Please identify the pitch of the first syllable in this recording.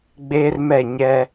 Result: high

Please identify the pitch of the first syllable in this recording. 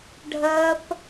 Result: high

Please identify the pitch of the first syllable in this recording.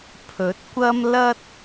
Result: rising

